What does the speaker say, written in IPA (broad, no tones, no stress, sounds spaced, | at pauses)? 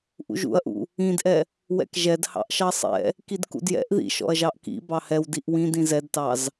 ʔ ṵ ʒ ṵ ɐ̯ ʔ ṵ | ĩ d ʔ ɛ | w ɛ̰ k ʒ ɛ d h ɑ̰ ʔ ʃ ɑ sˤ ɛ̰ | k i d k ṵ d j ɛ̰ ʔ ð ḭ ʃ ɔ̰ ɐ̯ ʒ ɑ ʔ k ḭ b ɑ h ɛ w d i ʔ w ĩ d ĩ z ɛ d t ɑ z